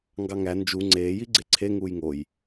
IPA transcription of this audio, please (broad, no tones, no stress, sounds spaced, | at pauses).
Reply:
ŋ ɡ ɑ ŋ æ n d͡ʒ u ŋ͡ǀ eː j i ɡ͡ǀ e ǀʰ e ŋ uː j ŋ o j